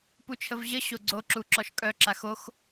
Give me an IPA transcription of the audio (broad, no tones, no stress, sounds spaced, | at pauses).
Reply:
p u t͡ʃʰ ə v ʑ ə ɕ o ɡ͡ǀ o ǁ u ǁ ɔ ʃ kʼ œ ǁ a x o x